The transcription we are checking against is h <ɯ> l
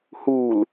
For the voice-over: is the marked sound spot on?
no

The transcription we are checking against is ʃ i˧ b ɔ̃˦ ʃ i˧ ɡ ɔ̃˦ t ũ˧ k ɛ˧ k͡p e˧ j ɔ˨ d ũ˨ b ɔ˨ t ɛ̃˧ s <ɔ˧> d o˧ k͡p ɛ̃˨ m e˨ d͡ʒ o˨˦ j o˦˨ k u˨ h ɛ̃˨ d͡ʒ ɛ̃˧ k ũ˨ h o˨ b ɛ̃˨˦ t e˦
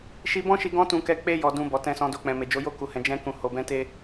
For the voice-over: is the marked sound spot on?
no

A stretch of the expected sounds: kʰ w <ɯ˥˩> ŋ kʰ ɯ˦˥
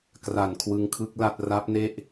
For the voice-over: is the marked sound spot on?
no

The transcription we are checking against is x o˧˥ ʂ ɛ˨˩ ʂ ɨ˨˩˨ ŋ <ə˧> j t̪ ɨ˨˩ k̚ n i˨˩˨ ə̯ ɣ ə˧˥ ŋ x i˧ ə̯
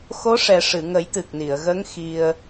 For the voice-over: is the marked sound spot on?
no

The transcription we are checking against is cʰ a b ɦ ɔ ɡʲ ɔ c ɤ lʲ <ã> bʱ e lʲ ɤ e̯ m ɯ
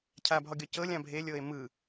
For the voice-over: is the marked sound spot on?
yes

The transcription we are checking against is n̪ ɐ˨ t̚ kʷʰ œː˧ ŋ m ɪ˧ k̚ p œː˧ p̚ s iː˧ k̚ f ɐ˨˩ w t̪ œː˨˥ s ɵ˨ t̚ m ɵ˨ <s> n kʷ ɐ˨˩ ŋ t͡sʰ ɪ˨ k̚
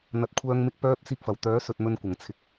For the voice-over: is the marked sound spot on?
no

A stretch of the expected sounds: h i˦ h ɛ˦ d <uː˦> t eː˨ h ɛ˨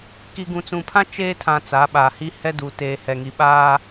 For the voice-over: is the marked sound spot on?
no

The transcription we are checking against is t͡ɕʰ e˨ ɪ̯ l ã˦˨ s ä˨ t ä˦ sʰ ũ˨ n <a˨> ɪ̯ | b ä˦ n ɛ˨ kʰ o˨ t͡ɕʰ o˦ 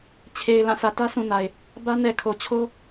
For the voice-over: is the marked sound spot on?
yes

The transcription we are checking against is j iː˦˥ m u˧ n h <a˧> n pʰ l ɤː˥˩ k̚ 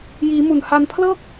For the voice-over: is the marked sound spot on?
yes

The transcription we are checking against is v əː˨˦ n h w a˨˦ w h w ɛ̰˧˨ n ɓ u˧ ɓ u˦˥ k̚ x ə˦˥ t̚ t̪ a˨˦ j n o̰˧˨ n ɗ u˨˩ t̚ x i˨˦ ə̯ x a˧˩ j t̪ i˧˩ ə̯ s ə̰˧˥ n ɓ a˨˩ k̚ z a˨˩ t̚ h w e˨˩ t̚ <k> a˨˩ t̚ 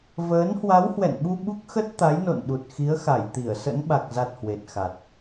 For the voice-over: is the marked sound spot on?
no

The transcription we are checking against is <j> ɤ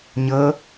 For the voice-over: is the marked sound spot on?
no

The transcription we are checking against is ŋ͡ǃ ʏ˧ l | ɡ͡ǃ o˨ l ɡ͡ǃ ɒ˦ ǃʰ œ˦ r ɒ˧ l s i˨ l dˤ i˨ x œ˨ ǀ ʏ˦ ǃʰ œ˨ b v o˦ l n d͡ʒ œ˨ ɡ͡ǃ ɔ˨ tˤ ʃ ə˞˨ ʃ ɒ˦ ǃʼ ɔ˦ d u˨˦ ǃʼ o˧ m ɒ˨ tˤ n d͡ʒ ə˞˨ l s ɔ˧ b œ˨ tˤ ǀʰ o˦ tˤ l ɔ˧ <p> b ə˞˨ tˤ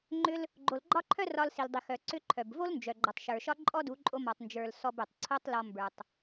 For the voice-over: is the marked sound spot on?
no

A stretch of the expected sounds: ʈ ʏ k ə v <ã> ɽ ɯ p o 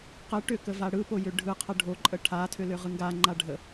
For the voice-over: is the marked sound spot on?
no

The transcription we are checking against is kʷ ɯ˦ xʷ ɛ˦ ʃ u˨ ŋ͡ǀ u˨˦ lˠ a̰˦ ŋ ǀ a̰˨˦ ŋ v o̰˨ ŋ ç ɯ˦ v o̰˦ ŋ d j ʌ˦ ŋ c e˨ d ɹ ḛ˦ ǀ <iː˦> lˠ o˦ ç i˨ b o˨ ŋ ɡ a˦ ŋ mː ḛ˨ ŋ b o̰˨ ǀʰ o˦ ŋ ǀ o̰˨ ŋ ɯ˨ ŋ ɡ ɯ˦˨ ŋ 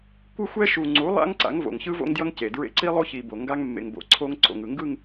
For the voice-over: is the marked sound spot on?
no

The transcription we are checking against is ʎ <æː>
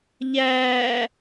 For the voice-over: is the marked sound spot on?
yes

